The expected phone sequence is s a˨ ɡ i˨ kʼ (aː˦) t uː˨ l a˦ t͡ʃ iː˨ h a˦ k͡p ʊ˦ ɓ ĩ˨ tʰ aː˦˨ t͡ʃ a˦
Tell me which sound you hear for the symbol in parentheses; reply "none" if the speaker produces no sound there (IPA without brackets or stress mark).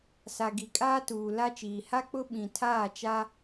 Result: aː˦